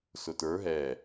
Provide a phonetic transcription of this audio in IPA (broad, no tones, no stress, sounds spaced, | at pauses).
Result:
s ʊ t ə˞ ɦ ɛ